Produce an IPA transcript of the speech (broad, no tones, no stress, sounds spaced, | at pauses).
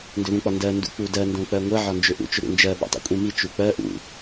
n d ʏ ð ũ k͡p ɒ n d ɜ n d ṵ k͡p u d ɜ n d õ k͡p ɜ ŋʷ ɜ ʕ ɒ n d͡ʒ ʏ ʔ ṵ t͡ʃ ʏ ɾ ṵ n d͡ʒ ɜ ɓ o̰ tˤ o̰ kʷʼ ĩ m i t͡ʃ u k͡p ɜ ʔ ṵ